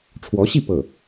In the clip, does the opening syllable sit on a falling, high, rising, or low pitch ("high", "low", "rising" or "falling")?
rising